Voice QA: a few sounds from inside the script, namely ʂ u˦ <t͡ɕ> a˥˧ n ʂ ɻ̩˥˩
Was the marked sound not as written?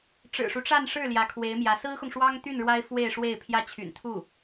yes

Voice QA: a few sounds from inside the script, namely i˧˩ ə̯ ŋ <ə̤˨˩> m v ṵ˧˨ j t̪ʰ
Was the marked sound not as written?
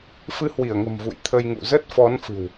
no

